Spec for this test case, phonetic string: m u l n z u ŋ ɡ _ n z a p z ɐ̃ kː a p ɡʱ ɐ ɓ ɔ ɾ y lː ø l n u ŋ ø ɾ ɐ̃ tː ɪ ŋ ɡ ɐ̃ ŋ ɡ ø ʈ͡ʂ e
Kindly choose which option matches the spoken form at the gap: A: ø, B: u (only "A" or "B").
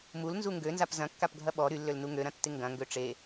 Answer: A